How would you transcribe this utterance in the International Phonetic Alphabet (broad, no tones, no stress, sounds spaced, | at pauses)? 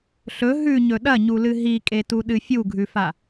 ɬ ɵ ɦ ʉ ɲ ɵ ɗ ɐ ɲ u l ɨ ɦ i kʼ e t u ɗ ɨ fʲ u ɡʱ ʉ f a